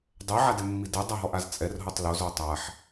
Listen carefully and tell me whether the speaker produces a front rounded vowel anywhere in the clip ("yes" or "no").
no